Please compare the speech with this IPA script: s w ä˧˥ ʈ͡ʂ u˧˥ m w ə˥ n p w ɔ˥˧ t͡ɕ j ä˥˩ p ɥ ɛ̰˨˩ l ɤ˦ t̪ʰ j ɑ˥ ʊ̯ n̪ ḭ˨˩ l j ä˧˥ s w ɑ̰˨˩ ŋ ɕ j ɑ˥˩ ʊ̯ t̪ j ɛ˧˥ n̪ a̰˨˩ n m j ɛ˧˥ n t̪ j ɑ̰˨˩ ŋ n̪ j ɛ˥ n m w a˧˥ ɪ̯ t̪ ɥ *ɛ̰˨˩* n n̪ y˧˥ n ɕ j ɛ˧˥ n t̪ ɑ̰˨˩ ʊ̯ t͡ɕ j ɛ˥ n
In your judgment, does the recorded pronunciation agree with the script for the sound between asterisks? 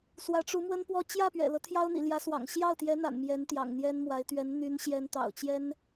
no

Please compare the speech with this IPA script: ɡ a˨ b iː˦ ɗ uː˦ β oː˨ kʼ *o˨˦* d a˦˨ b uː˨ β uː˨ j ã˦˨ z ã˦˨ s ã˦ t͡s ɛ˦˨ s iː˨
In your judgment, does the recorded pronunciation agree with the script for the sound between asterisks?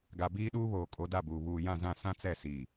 yes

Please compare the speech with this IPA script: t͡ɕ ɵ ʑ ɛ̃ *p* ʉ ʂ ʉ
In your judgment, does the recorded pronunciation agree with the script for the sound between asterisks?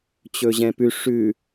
yes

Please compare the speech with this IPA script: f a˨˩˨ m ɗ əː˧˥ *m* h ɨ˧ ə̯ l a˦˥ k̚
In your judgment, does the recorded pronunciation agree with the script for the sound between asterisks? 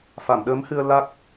yes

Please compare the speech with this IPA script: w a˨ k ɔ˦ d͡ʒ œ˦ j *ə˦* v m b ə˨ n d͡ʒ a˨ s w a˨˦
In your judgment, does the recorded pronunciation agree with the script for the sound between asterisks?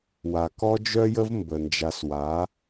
yes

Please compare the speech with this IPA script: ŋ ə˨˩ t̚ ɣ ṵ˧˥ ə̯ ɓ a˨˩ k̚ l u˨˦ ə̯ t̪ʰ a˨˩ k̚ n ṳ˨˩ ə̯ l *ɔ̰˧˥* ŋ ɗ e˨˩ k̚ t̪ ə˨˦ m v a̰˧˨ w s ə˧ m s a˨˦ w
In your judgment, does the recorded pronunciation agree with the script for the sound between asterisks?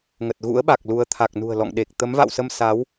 no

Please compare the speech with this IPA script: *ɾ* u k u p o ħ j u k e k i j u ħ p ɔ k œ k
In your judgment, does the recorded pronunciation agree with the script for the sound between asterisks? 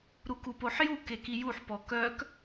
yes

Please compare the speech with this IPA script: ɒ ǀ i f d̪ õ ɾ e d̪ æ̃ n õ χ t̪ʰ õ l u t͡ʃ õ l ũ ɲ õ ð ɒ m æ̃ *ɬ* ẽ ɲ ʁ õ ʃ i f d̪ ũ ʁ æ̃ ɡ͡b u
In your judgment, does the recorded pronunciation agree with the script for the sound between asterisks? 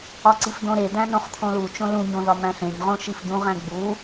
yes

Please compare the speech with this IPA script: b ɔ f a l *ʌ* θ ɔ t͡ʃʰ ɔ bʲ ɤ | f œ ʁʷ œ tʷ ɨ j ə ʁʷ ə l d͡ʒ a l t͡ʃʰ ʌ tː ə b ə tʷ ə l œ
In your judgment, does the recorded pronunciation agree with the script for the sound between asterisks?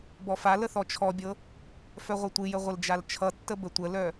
no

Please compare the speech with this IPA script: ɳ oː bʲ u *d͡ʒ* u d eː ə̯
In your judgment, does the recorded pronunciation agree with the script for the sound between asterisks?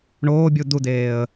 no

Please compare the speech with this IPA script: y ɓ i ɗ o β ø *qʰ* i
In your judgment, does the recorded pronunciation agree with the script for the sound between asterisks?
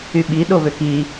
no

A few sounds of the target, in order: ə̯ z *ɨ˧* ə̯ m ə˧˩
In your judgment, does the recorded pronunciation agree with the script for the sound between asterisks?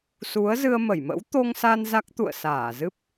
yes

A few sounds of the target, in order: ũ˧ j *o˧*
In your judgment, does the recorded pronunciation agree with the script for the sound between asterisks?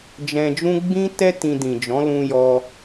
no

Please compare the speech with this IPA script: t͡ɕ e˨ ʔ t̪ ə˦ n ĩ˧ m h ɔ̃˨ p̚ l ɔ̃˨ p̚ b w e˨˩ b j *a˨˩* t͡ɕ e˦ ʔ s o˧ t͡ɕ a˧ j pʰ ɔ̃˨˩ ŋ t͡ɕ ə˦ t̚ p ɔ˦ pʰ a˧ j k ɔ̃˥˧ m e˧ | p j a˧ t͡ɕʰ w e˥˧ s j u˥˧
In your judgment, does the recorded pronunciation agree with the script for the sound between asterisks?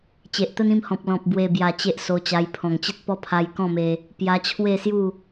yes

